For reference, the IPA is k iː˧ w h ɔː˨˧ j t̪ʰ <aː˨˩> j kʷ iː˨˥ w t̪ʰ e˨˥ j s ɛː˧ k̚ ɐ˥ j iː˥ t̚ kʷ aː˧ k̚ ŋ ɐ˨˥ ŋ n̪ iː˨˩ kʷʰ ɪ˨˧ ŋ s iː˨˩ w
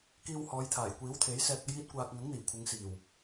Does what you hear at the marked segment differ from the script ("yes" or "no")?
no